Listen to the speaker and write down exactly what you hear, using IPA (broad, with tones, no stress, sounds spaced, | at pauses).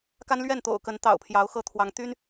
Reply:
k a˦ n l ɥ ɛ˥˨ n t̪ o̰˨˩ ʊ̯ k ə˨˦ n t̪ ɑ̰˨˩ ʊ̯ pʰ j ɑ˨˦ ʊ̯ x ɤ˦ t̪ʰ w ɑ˨˦ ŋ t̪ y˦ n